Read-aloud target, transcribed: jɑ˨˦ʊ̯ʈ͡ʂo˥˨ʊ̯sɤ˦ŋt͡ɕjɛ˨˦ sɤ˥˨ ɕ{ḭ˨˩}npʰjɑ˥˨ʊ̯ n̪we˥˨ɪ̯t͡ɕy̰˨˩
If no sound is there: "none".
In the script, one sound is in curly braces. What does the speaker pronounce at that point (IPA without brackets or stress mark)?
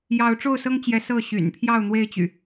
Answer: y̰˨˩